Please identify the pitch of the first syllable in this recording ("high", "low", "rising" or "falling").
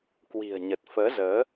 low